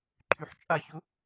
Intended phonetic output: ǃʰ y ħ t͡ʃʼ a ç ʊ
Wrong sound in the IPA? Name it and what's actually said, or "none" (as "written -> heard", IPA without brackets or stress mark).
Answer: none